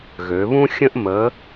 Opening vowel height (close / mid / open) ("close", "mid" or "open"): mid